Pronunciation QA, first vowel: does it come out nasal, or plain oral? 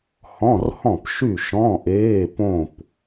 nasal